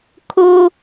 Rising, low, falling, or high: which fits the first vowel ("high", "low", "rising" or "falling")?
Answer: high